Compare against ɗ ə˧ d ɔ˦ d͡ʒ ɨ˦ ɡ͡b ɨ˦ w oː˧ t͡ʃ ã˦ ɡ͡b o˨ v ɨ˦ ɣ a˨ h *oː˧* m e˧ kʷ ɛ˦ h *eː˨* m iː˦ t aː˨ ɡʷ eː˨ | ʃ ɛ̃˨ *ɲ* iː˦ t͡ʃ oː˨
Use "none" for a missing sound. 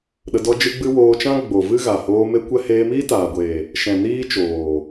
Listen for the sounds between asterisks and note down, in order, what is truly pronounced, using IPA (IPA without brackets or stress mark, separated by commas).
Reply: oː˧, eː˧, n